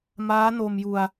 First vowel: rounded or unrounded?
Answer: unrounded